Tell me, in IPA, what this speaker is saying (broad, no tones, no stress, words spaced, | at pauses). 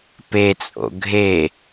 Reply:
pet͡sʼo̰ ɡʱe